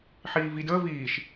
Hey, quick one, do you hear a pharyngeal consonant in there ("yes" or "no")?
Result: yes